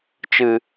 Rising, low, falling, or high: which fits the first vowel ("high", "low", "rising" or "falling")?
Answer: low